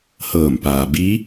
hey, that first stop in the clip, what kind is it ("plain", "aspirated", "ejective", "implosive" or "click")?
plain